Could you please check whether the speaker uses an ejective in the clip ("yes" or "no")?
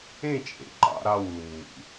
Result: yes